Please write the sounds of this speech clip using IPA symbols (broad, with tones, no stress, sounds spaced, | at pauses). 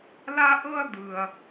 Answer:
l a˥ ʔ ɤ˥ ɐ̯ d̪ ɯ˨ ɐ̯